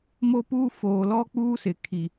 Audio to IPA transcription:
m o˦ p uː˦ f oː˨ l ɔ˦ k͡p uː˦ s ɪ˨ kʰ i˨

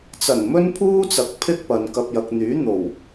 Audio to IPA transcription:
t͡s ɐ˨˩ n m ɵ˥ n pʰ uː˥ t͡s ɐ˨˥ k̚ pʰ ɪ˥ k̚ p ɐ˨ n k ɐ˧ p̚ j ɐ˨ k̚ n̪ yː˨˥ n̪ o˨˩ w

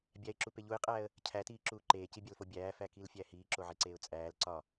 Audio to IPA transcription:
bʲ æ ɪ̯ ǁ u p e ʎ u ɪ̯ qʼ æː ə̯ | cʰ æ t iː ǁ uː ǃ eː c i bʲ æ l f o bʲ æː f æ k i l fʲ æ h iː ǁ o ʕ e ǀ eː ʊ̯ t͡sʼ æː l ǀ ɒ

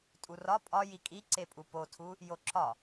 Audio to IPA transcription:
tʼ u r ɒ pʼ ɒ j i kʼ i ǀ e pʼ u p o tʰ u | j o ǁ ɒ

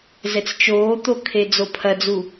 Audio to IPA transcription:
z ɛ t͡s t͡ʃ oː t̪ o kʰ e d͡z o pʰ ɐ d͡z u

